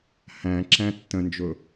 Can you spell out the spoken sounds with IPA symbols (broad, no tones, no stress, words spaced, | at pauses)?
hæ̃ ǁæ̃tːə̃nd͡ʒʊ